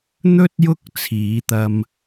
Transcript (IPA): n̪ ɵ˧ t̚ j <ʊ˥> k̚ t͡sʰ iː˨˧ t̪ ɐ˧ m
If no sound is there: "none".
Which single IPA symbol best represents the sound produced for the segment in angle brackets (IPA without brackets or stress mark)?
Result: ʊ˥